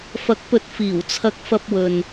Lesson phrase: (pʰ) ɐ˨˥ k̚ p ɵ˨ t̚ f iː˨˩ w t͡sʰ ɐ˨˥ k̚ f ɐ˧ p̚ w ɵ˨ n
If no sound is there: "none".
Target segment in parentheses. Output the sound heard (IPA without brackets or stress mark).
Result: f